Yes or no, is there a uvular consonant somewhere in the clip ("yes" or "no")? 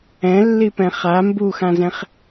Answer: yes